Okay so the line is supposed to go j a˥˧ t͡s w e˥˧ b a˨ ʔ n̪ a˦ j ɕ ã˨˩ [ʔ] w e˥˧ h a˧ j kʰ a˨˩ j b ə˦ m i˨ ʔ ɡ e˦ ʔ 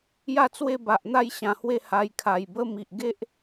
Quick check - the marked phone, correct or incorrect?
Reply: incorrect